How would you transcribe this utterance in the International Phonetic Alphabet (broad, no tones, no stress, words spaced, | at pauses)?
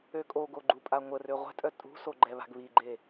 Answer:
økʼoɡo ɡ͡ǃupʼaŋʷərø ʁʷɛ̤tʼœ tʼṳso ɡ͡ǃɛβa̤ɡβiɡ͡ǃe